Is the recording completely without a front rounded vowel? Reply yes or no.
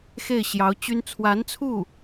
no